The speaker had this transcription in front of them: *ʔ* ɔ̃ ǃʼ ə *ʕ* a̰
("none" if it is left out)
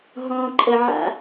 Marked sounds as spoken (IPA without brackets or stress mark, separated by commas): ɦ, ʕ